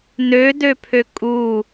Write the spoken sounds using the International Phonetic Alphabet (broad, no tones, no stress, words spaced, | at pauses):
nødøpʰø kʼu